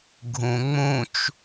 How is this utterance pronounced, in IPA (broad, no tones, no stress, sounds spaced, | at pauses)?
ɡʱ ũ ŋ͡m ũ t͡ʃ